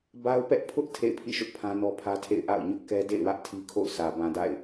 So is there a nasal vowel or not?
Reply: yes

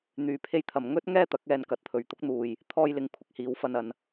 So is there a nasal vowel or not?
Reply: no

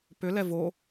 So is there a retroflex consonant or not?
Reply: no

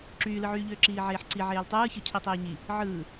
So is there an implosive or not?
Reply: no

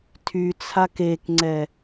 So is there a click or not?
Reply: yes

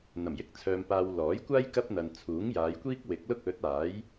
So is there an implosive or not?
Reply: no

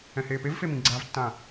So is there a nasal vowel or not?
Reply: yes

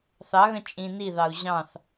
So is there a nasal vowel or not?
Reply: yes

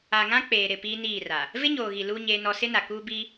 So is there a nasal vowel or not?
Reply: yes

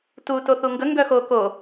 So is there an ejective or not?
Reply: no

